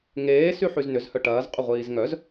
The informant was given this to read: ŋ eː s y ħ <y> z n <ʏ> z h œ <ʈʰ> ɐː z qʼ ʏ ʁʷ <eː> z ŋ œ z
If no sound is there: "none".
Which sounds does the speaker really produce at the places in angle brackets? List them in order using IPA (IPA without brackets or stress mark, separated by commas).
y, ʏ, ʈ, iː